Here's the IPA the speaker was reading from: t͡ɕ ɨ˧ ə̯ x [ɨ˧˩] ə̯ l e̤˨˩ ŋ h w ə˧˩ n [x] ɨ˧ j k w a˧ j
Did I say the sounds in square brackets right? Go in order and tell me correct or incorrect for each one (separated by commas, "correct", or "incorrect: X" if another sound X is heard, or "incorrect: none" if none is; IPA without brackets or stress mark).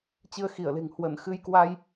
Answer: incorrect: i˧˩, correct